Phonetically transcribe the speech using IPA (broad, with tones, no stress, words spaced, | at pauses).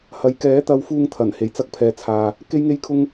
hɐ˨˧j kɛː˨˥ t̪ɐ˧wfuː˧ŋt̪ʰɐ˨˩n he˨˩jt͡sɐ˧k̚pʰɛː˨t͡sʰaː˨ | ke˧jŋe˧jkʰʊ˧ŋ